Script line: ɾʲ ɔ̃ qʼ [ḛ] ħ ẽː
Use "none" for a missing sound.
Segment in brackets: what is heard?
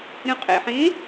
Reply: ḛ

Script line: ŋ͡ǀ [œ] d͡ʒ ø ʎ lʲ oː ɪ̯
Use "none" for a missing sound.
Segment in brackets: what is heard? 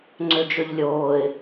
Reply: ø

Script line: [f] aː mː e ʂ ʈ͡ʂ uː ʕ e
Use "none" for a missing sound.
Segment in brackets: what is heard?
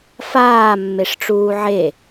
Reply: f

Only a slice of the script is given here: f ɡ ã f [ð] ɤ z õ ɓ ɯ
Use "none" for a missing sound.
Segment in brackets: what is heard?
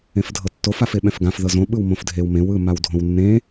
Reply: ð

